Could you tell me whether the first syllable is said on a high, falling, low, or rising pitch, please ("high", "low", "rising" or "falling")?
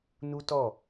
high